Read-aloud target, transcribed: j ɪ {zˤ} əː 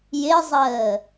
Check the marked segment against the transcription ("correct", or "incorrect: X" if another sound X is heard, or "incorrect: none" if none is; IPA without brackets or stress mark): correct